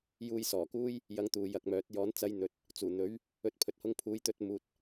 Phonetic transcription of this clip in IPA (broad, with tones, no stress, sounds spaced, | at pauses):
j uː˧ j s ɔː˨˩ k uː˥ j | j ɐ˧ ŋ t̪ uː˨ j ɐ˨ k̚ m œː˨˥ t̚ j ɔː˨˥ n t͡s ɐ˧ j n̪ ɵ˨ t̚ | t͡s uː˨˩ n̪ ɵ˨˥ ɥ | ɵ˧ t̚ pʰ ɵ˨ t̚ h ʊ˧ ŋ pʰ uː˨˧ j t̪ ɵ˨˥ t̚ m uː˨ t̚